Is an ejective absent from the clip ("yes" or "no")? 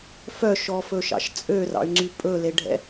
no